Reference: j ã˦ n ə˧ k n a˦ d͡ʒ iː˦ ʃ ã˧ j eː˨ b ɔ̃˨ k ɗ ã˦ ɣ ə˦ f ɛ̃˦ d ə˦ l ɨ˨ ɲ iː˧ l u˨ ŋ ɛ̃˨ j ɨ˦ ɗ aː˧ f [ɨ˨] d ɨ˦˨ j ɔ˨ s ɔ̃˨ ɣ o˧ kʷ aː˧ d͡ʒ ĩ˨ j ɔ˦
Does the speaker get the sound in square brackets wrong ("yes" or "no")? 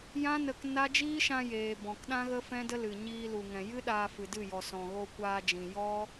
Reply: no